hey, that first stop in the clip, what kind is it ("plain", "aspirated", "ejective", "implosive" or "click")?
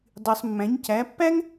plain